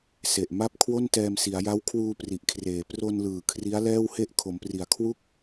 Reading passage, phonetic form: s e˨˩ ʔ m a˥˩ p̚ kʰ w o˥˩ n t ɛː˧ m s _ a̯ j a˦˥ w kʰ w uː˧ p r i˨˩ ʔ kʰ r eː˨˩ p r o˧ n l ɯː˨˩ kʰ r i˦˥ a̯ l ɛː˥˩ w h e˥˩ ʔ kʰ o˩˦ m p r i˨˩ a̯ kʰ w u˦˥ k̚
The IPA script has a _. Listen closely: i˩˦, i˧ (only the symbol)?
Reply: i˩˦